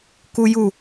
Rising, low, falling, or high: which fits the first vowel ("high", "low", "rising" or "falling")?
high